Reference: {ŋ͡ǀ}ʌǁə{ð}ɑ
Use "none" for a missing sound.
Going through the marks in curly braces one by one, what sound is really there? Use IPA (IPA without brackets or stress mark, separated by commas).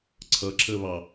ǀʰ, β